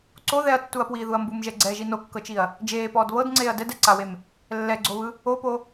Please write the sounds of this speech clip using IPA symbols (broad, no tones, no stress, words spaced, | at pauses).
ǀo ðɛɐ̯tːuɐ̯pwiːðuɐ̯ mbumʒɛɡ͡ǀɛːʒi nokːɤt͡ʃiɐ̯ | d͡ʒeːpɔːd βɤdŋ͡ǀeːɐ̯ dɛdɛǀawem | lːɛɡ͡ǀoβɯ | opo